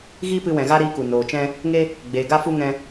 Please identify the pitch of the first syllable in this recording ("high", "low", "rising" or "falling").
high